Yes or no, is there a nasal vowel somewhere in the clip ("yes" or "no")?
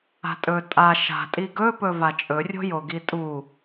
no